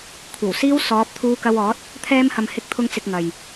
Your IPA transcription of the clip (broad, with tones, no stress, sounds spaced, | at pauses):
kʷʰ ɐ˨˩ w s iː˥ w s ɔː˨˥ p̚ t̪ʰ uː˧ k ɐ˧ w ɔː˨˥ t̚ | t̪ʰ ɛː˧ m h ɐ˨ m h ɪ˧ k̚ t̪ʰ ʊ˧ ŋ t͡s ɪ˧ k̚ ŋ ɐ˨ j